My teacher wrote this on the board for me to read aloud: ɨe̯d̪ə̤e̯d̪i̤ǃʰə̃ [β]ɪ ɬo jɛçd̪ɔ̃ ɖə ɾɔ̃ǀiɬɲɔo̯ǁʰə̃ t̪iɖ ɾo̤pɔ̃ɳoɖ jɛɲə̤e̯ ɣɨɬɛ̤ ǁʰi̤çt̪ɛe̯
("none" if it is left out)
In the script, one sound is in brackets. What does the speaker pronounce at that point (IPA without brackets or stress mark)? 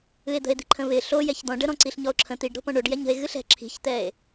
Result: β